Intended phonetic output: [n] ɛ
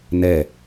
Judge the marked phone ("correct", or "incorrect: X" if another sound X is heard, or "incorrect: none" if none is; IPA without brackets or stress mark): correct